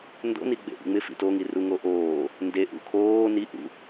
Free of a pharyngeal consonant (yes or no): yes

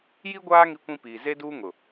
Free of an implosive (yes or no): yes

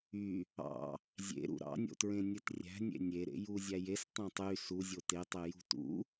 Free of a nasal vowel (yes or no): no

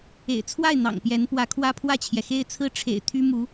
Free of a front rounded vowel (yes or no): no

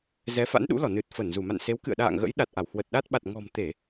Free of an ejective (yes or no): yes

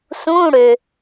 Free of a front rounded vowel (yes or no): no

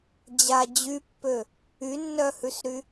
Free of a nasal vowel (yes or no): yes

